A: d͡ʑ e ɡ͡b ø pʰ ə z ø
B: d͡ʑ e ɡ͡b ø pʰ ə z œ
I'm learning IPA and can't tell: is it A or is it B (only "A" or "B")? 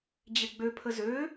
A